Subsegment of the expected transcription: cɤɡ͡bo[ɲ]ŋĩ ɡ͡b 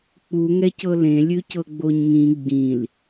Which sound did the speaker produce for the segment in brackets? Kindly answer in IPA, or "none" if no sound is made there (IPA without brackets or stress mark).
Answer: ɲ